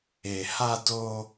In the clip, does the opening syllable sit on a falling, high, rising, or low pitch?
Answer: low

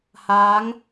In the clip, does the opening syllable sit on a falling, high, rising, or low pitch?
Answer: rising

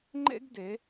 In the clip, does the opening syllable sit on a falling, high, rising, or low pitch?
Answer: high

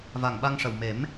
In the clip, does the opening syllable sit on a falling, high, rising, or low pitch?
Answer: low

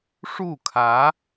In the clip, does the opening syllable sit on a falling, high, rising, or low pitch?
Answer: falling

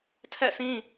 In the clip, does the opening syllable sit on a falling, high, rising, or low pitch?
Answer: falling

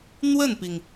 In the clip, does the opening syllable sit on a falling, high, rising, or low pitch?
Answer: falling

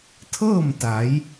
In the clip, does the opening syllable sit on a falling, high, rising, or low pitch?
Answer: falling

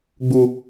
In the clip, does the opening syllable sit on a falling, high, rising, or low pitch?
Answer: low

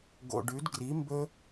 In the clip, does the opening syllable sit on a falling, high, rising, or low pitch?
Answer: low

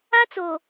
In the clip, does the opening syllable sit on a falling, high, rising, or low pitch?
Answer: high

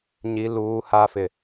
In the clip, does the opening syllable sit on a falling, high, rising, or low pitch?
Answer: low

